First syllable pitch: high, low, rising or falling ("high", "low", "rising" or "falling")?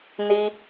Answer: high